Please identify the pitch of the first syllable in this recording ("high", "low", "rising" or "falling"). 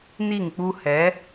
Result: falling